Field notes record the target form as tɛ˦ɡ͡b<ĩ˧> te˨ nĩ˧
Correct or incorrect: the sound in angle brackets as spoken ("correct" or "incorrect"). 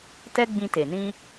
correct